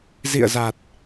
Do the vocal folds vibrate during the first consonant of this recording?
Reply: yes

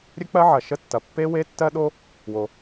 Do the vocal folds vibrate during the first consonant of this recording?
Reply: yes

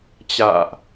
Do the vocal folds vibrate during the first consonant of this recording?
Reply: no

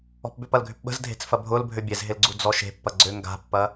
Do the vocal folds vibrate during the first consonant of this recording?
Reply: no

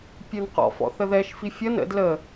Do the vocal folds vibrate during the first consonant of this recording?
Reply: no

